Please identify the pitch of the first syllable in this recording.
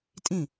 falling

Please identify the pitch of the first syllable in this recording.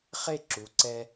falling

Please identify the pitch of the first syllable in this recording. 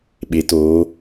rising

